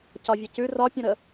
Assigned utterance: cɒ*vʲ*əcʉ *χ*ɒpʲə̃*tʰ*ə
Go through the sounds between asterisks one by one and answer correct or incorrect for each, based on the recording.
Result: correct, incorrect: r, incorrect: ɾ

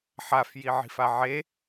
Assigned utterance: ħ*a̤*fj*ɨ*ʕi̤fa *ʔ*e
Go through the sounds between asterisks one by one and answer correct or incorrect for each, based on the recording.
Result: incorrect: a, incorrect: i, incorrect: ʕ

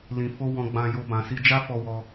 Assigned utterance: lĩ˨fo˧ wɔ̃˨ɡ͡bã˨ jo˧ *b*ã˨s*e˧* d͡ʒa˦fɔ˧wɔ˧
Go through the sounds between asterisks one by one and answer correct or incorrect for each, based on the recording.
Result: correct, incorrect: i˧

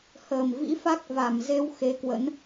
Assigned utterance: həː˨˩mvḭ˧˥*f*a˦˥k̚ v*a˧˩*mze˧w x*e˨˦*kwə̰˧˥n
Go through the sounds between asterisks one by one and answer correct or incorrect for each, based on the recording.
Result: correct, correct, correct

